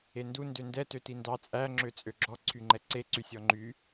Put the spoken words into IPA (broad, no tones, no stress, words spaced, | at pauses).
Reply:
endu ndøndɛ tøtindɑ t͡sʼæ ŋ͡ǁøt͡sʼøɡ͡ǁɔ ǀʰyŋ͡ǃɛǀe ǀysʲɔŋ͡ǃy